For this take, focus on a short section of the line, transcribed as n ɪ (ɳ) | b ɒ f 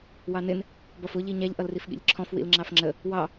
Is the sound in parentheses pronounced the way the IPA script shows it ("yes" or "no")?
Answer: no